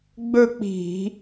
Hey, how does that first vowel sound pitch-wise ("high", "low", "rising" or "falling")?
falling